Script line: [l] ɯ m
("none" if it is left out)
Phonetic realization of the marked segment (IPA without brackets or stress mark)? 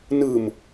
n